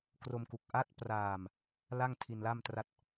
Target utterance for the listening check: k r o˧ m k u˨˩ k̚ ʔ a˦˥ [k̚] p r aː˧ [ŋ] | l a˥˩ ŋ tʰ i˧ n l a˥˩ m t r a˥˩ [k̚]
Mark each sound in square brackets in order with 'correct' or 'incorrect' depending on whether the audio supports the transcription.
incorrect, incorrect, incorrect

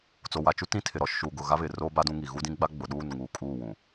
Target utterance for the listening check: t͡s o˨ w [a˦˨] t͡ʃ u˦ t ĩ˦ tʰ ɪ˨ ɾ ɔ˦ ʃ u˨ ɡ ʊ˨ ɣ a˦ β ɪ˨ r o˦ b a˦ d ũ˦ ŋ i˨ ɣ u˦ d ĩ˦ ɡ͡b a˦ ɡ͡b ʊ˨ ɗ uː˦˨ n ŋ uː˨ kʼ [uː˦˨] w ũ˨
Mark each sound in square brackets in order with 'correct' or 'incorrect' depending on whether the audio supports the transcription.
incorrect, correct

